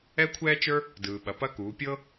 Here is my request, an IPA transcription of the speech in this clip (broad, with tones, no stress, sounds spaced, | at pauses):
ɛ˥ kʷʰ ɛː˥ t͡ʃ ə˞˥ | d ɯː˩ ɓ ɐ˩ p ɐ˧ k uː˩˧ pʲ ɤ˥